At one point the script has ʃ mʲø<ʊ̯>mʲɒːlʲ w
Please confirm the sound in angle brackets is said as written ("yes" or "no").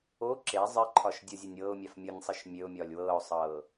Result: yes